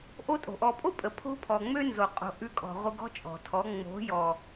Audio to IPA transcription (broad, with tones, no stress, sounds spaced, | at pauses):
ʔ o˦ tʼ o̤˨ ʔ ɔ˨ pʼ o˦ pʼ ə˨ pʰ o̤˦ pʰ ɔ˨ ŋ͡m ø˦ n z o˨ qʼ o̤˨ ʔ ʉ˧ kʼ ɔ̤˨ ʁʷ ə˧ ɡ ɔ̤˦ t͡ʃʼ ɔ̤˨ tʰ ɔ˨˦ ŋ͡m o̤˨˦ j ɔ˨